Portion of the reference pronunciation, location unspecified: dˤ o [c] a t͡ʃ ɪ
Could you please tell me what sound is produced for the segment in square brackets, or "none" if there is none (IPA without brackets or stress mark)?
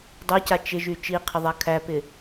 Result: c